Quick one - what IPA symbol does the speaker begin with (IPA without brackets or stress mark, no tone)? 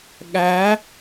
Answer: ɠ